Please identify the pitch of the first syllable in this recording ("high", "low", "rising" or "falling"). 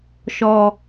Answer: low